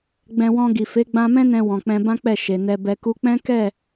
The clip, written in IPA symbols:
ɡ͡b ɛ̃˧ w ɔ̃˧ ɡ i˨ f e˨˦ ɡ͡b ã˧ m ɛ̃˦ n ɛ̃˧ w ɔ̃˨ k͡p ɛ̃˧ b ã˦ k͡p ɛ˦˨ ʃ e˨ n ɛ˨ b ɛ˨ k u˧ k͡p ɛ̃˦ k ɛ˦˨

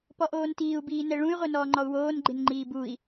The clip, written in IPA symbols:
p ɔ ʔ oː n t iː u̯ b iː n ɛ ɭ ũ y̯ ʁʷ e n ɔː ŋ͡ǃ ɔ u̯ w oː n ɡ͡ǃ ɪ n ŋ͡ǃ iː b u i̯

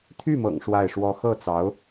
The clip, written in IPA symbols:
t̪ʰ y˥˩ m ɤ̰˨˩ ŋ ʂ w a˥˩ ɪ̯ ʂ w ɔ˥ x ɤ˥˩ t͡s ɑ˧˥ ʊ̯

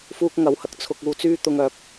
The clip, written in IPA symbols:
f uː˥ k̚ ŋ ɐ˨˥ w h ɐ˨ k̚ t͡sʰ ʊ˧ k̚ uː˧ t͡s yː˥ t̪ ʊ˧ ŋ œː˨˥ p̚

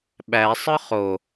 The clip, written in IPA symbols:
ɓ æ sˤ ɯ χ o

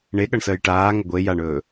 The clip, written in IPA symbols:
ɳ e ɠ ʌ ɳ s əː j ʈ aː ŋ ə ɡʷ e j a ɳ ɵː

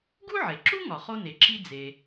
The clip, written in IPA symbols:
ɡ u˥ ʕ e˩ ǁ u˥ ŋ ɒ˩ χ o˥ n e˩ ǁ i˥ d͡z e˩

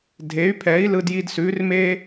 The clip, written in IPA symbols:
dʱ e˩˥ y̯ pʰ ɛ˩˥ i̯ l ɯ˧ d j i˧ d s ʉ˩˥ r m e˥

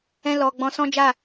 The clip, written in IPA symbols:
ɛ̃˧ l ɔ˨ ɡ͡b ɔ̃˧ s ɔ̃˦ d͡ʒ a˦˨

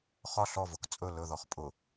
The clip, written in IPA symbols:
χ ɒ ɬ ɔ v ʊ k t͡sʼ ɵ l ɵ ð ɔ χ pʼ ʊ

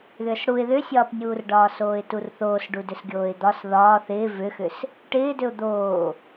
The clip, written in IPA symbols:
ð ʏː s ɽ u ɪ̯ ð ʏ sʲ ɒː p nʲ uː r ɖ ɒː s oː ɪ̯ t u r θ oː s ɖ u d ʏ s ɡʲ oː ɪ̯ d̪ ɒ s ð ɒː θ ɪː v ʏ x ʏ s | ʈ ɪː d ʏ ʊ̯ d̪ oː

